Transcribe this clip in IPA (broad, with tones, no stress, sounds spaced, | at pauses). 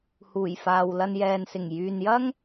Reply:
h uː˨˩ j f aː˨ w l ɐ˧ n j ɛː˨ n s ɪ˨˩ ŋ j yː˨ n j ɐ˥ ŋ